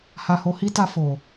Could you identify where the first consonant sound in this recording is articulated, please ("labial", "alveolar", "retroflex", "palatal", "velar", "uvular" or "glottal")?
glottal